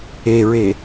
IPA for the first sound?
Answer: e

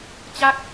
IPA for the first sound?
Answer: t͡ɕ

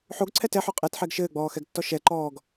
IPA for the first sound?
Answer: ħ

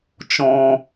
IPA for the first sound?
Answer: t͡ʃ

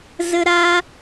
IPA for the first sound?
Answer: z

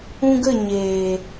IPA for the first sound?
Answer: ũ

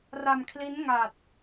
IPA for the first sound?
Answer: r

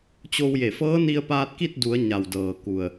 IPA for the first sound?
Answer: t͡ɕ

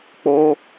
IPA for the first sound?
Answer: k͡p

